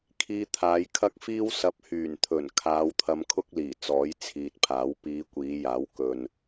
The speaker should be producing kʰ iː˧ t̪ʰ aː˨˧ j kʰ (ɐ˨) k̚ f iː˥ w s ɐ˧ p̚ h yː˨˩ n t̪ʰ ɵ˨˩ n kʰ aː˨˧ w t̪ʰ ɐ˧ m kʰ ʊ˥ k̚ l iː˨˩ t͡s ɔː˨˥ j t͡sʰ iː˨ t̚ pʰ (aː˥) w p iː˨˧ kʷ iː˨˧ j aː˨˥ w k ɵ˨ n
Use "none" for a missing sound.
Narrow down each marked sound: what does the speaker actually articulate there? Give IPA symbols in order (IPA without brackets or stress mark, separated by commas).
ɐ˥, aː˨˥